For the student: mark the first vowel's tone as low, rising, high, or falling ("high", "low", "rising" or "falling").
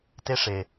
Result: high